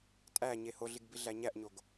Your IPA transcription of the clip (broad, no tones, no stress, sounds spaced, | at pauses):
tʼ æ ɲ e h o ɮ i ɡ b i ɮ æ ɲ æ ʔ ɲ o ɡ